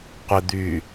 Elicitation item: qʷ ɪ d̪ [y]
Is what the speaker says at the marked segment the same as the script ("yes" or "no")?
yes